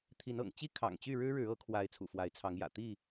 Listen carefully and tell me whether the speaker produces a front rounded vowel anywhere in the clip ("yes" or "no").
yes